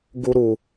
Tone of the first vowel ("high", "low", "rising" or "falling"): high